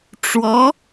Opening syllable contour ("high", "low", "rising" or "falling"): rising